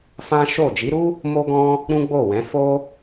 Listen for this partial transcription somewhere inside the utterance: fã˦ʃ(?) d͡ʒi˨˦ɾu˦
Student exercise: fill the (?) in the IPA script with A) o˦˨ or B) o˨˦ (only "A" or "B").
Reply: A